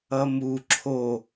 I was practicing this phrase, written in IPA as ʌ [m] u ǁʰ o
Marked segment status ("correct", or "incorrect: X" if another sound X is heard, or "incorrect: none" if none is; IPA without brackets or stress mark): correct